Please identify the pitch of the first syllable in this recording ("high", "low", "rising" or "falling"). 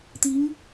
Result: rising